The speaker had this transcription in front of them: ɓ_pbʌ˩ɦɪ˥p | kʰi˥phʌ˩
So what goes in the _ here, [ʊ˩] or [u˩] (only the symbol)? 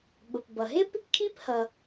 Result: ʊ˩